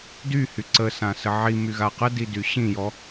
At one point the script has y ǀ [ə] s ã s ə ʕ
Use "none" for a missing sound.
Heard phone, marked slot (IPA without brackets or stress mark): ə